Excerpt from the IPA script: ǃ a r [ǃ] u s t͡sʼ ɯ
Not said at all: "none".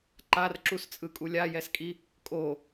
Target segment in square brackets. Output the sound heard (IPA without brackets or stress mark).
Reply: ǁ